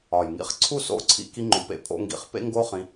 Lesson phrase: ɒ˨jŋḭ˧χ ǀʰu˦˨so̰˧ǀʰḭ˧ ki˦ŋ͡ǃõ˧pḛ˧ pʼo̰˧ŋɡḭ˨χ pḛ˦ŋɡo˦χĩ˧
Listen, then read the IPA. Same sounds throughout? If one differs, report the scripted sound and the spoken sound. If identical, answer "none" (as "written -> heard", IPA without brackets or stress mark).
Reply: none